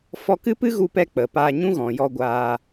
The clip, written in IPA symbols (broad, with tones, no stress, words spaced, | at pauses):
fɔ˧kɨ˦pɨ˦ ɣu˧pɛ˧ k͡pə˨paː˧ ɲũ˦ɣɔ̃˨jɔ˧ ɡʷaː˧